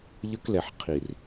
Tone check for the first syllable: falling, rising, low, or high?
high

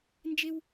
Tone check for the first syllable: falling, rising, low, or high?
high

